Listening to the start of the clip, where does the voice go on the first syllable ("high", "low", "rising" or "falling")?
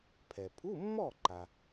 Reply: low